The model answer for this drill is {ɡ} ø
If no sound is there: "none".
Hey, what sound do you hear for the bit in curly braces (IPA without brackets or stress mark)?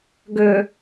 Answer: ɡ